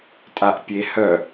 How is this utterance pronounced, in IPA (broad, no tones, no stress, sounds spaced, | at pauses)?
tʼ a ʔ pʲ e h œ